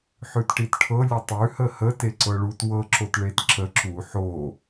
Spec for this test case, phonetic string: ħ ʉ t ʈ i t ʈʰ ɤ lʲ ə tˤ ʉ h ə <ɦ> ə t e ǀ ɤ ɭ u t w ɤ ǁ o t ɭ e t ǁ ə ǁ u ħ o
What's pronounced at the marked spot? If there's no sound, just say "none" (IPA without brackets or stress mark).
h